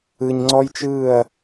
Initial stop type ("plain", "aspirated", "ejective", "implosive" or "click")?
click